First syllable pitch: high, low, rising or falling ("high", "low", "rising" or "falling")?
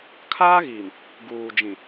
high